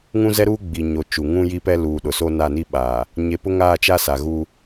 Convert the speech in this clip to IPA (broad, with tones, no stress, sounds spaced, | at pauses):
ŋ ũ˦ z ɛ˦ ɾ uː˦ ɡ͡b i˨ ɲ o˨ t͡ʃ u˨ ŋ ũ˦ j i˦ p ɛ˦ l uː˨ ɗ ʊ˨ s o˦ n a˦˨ n i˦ ɓ aː˨ | ɲ e˨ p ʊ˦ ŋ aː˦˨ t͡ʃ a˦ s a˨ ɣ uː˦